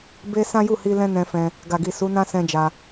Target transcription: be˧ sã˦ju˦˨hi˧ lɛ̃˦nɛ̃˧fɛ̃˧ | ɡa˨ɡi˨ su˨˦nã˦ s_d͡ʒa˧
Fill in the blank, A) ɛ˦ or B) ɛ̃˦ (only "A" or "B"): B